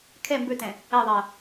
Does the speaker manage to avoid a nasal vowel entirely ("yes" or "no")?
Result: no